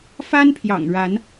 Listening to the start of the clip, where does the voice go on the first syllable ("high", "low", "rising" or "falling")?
high